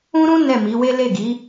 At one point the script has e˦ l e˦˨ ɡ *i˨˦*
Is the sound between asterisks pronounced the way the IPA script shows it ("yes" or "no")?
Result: yes